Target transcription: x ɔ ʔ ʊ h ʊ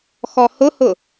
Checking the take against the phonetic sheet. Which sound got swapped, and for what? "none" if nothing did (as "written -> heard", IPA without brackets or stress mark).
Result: ʔ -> h